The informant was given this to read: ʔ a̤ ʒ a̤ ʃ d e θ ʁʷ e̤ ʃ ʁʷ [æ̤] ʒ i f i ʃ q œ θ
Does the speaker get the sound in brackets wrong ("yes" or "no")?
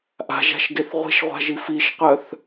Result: yes